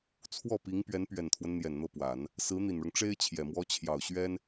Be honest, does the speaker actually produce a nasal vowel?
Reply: no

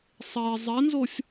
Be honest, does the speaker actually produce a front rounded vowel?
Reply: no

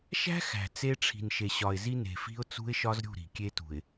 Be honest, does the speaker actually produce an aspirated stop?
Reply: yes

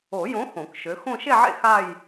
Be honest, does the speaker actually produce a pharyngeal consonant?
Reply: yes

